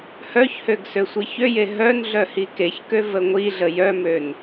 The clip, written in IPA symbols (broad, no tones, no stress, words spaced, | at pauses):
hœçhøɡ søsʷiçøje ɦœnɮœ hikeçkø vəŋʷiɮə jœmøn